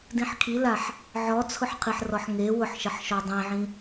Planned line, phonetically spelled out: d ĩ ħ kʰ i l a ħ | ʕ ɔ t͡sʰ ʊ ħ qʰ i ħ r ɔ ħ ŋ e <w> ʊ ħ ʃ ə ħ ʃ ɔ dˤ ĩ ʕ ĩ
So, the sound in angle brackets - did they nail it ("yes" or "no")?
yes